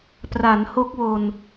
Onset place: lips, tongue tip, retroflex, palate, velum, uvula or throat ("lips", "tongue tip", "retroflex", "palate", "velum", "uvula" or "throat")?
lips